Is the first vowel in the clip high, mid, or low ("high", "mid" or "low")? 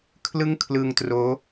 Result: high